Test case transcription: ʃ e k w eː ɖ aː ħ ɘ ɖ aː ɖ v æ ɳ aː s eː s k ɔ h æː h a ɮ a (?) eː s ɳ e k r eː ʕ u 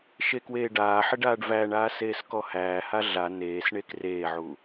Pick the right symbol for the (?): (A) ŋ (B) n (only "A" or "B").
B